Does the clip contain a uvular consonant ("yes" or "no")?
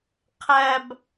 yes